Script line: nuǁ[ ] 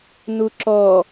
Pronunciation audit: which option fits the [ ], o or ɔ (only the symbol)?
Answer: ɔ